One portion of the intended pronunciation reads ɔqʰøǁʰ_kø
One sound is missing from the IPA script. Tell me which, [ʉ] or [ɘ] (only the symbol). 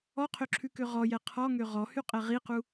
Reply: ʉ